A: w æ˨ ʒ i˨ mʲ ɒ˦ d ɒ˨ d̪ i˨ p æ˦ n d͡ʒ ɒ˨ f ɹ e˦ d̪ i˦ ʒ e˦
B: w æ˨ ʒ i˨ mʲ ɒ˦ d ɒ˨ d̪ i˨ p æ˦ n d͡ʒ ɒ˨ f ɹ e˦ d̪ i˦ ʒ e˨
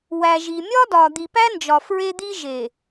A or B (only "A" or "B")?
B